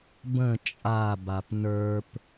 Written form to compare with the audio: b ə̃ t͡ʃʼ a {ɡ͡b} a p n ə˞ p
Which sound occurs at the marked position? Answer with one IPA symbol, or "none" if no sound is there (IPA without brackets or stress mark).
b